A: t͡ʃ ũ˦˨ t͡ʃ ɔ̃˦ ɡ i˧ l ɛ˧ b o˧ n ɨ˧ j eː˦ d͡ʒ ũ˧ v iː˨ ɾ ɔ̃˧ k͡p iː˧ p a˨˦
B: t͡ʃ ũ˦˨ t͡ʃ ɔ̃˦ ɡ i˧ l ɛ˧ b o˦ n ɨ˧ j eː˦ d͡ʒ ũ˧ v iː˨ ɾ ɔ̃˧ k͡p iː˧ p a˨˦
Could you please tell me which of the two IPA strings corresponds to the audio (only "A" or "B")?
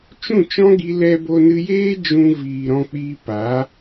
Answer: A